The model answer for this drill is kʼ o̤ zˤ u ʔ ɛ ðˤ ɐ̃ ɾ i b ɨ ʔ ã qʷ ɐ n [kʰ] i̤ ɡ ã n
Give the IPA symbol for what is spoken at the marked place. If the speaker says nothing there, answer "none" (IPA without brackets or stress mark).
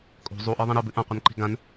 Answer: ǃ